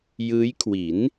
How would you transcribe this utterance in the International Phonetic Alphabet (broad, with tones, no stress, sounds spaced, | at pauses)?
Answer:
j ɯː˦˥ j kʰ w i˩˦ n